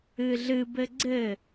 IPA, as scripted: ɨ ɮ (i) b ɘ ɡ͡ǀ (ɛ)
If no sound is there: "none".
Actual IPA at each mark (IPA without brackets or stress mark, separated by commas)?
ɨ, ɘ